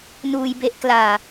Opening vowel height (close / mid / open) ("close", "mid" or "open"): close